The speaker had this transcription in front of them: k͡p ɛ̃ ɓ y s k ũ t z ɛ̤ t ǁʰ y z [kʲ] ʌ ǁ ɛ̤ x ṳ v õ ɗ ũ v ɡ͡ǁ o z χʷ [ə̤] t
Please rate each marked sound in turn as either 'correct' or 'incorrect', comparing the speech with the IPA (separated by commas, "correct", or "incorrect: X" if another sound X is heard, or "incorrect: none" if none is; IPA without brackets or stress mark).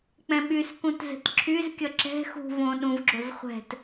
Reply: correct, incorrect: ɛ̤